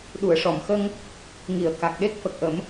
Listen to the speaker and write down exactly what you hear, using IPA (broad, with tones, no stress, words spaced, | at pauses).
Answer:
ɗu˨˩˨ə̯ʂɔ˨˩˨mxə˧ŋ | ŋi˨˩˨ə̯ka˨˩k̚ɗe˦˥k̚ fə˨˩k̚ʔə˨˩˦m